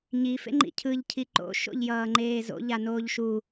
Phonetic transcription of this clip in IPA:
ɲ i f ḛ ŋ͡ǃ ḭ cʰ ɯ ʎ cʰ i ǃ o̰ ʃ o̰ ʎ j ʌː ŋ͡ǃ eː z o̰ ʎ a n oː ʎ ʃ u

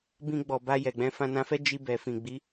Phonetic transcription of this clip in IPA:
b ĩ˧ ɡ͡b ɔ˨ b a˧ j ɛ˨ ɡ͡b ɛ̃˧ f ã˧ n ã˧ f ɛ˦ d͡ʒ i˧ b ɛ˨ f ĩ˨ ɡ͡b i˨˦

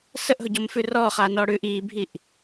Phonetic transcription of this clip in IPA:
s ə ʔ ɦ ʊ ɟ ɔ m f ʉ r ɔː χ aː n ɔː ɽ ʉː ʔ iː bʱ i ʔ

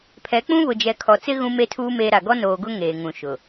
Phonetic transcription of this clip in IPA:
pʰ ɛ˨˦ k͡p ũ˦ β ʊ˨ d͡ʒ ɛ˨ kʰ ɔ˨ t͡s ɪ˦ ɣ ũ˦ m e˦ tʰ uː˦ m eː˦ ɾ a˨ ɡ ɔ˦ n oː˨ ɡ ʊ˦ ŋ eː˨ ŋ ũ˨ ʃ ʊ˨

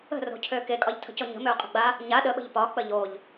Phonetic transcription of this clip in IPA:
ə̤ r o̤ cʰ ø k e kʼ ɒ ʎ tʰ ə̤ c o ɲ ə̤ m ø ʊ̯ qʼ ə̤ ɡ͡b a | ɲ a ɗ ə ɓ ə̤ ʎ p ɒ k͡p ə ʎ o ʎ

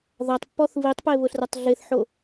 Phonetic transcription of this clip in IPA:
ð a tˤ pː ɔ θ β i tˤ p e β ʊ ɬ r a tˤ ɮ e θ ħ o

